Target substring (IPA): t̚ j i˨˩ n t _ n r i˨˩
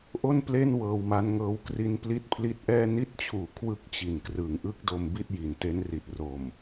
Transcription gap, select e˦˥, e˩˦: e˦˥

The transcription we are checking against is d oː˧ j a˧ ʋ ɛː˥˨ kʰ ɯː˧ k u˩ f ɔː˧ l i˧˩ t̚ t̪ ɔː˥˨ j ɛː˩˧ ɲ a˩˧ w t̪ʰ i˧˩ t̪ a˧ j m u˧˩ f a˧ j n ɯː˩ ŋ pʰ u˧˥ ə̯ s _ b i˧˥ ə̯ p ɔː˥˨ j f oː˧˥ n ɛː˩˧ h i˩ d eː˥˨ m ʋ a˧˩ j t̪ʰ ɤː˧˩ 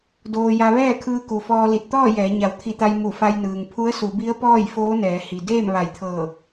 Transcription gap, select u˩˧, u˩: u˩˧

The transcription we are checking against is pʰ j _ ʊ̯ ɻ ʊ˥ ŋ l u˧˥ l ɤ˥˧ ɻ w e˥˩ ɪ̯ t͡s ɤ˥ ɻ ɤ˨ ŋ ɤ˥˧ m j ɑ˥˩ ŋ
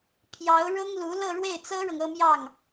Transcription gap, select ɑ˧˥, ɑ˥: ɑ˧˥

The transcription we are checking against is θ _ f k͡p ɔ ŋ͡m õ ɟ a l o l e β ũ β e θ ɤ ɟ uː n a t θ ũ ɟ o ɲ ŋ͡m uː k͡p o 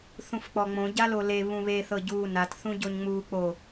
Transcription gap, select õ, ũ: ũ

